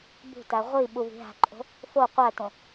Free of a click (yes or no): no